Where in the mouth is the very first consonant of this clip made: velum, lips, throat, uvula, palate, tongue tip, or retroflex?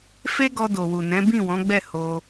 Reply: lips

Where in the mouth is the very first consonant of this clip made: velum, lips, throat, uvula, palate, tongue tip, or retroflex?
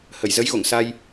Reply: throat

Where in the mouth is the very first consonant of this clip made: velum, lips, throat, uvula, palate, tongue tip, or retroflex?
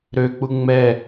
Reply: tongue tip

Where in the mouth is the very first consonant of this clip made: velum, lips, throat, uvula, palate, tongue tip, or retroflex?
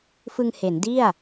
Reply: lips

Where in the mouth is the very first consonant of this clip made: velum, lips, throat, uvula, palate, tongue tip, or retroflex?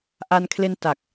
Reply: throat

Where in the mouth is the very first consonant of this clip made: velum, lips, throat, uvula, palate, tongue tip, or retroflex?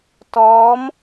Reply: tongue tip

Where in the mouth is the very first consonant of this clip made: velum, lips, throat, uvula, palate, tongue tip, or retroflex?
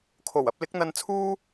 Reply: velum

